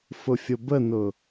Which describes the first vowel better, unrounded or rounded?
rounded